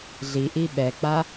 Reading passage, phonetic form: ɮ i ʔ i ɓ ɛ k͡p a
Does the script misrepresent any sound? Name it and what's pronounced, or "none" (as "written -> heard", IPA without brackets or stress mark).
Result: none